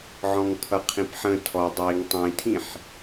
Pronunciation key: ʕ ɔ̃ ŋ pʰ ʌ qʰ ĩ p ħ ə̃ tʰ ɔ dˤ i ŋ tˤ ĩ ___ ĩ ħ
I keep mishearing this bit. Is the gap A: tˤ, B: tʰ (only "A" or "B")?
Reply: B